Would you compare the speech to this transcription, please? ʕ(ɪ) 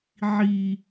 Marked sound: incorrect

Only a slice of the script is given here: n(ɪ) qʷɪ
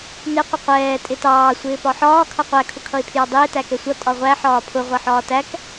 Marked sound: correct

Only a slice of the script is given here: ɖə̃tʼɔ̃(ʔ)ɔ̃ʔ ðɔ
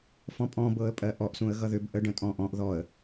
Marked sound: correct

